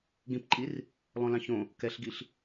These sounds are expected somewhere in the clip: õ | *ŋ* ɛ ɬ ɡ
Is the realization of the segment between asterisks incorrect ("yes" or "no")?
yes